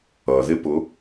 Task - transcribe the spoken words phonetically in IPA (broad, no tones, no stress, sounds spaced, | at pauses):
ʌ ð ɪ p ʊ